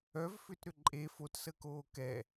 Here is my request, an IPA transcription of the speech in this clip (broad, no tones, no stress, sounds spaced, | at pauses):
œ v f ʏ t ɾ ʏ ǃʼ e f o t s əː k oː k ɛ